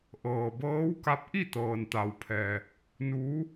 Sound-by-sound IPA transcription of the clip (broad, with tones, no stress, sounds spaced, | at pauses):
ʔ ɤː˩ b ɤː˧˥ w k a˧˥ p̚ ʔ i˥˨ t̪ ɤː˩ n t̪ a˩ w pʰ ɛː˩ | n uː˧˥